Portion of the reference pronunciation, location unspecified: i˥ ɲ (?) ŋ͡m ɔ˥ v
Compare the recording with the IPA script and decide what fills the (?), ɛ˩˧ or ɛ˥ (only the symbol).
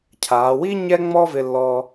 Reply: ɛ˥